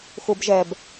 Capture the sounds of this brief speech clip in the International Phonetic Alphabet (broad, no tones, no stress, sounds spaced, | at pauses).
x u b ʒ ɛ b